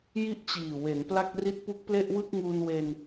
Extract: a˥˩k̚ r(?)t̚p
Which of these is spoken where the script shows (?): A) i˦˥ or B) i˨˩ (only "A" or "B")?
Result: A